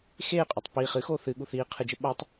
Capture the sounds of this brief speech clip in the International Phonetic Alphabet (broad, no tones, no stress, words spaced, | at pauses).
xeːqʼutˤ piːχ ɨ xoːθɨɠu θiː qʰɨd͡ʒɘ ɓatˤ